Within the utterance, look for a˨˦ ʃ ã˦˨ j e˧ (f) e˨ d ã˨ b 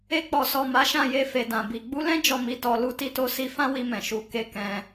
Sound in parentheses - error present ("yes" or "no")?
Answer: no